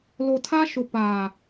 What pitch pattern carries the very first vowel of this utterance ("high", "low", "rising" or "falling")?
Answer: low